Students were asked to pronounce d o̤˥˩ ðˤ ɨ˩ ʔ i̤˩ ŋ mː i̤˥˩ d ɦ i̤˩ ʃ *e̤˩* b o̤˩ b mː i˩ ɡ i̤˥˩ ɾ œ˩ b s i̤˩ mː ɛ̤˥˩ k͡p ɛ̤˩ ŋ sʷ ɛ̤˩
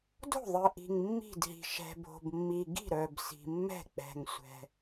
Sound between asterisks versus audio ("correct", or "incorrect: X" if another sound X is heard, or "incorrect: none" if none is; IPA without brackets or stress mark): incorrect: ɛ̤˩